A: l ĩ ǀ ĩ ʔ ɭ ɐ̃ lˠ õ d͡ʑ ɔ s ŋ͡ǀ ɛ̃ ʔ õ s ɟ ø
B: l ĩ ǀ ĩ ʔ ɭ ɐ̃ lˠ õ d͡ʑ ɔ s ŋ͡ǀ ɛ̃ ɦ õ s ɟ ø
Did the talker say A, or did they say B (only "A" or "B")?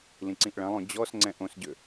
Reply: A